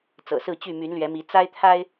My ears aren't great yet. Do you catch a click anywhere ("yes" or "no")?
no